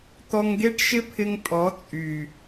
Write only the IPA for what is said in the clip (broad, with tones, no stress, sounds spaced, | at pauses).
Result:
t̪ ɔ˧ ŋ ɡ e˦ ʈ ʃ ɪ˦ pʰ ɪ˧ ŋ tʼ ɔ˨˦ t͡sʼ y˨